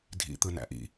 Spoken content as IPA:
dʱ ḭ t̪ ɯ n æ̰ ʔ ḭ

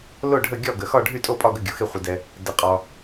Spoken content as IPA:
l o˥˩ ɖʱ ə˥˩ ɡʲ ɒ˥˩ ɡ ə˨ x ɒ˥˩ ɖʱ y˥˩ tʼ o˥˩ pʼ ɒ˥˩ ɡ ə˥˩ ɡʲ o˨ x e˥˩ χʷ ə˨ d ɛ˨ | d ə˨ qʼ ɒ˨

